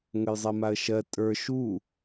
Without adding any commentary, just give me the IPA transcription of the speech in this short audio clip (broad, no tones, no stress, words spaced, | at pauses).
ŋəjzˤɛmaə̯ʃɜ tʼə˞ ʃu